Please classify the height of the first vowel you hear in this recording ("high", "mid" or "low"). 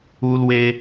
high